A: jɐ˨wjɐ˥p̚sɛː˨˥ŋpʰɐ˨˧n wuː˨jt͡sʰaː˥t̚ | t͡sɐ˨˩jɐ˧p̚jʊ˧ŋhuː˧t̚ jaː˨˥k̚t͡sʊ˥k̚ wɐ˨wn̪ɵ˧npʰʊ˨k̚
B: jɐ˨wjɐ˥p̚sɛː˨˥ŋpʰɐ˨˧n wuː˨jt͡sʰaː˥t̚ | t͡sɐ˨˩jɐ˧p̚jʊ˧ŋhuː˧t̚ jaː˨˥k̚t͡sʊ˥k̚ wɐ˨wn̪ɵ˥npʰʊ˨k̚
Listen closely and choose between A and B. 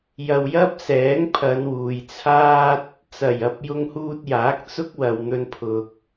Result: A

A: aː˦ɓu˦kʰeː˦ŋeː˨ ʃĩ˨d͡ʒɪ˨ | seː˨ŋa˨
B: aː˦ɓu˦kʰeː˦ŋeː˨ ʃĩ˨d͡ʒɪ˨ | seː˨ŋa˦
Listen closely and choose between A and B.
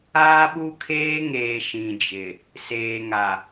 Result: A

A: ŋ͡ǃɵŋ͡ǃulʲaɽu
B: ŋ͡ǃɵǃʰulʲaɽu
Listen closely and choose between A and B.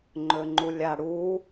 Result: A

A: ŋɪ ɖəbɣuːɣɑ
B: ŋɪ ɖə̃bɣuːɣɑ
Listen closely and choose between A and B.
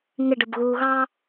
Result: A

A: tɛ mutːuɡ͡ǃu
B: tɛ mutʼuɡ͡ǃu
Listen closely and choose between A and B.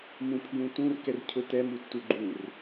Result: A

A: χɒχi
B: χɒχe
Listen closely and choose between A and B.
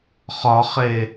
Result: B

